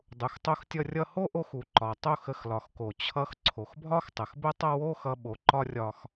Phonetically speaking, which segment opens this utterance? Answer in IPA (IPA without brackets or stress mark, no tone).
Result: dˤ